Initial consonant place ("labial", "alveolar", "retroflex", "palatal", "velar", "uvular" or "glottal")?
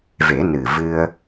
labial